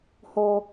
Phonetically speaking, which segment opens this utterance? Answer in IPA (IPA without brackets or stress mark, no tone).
h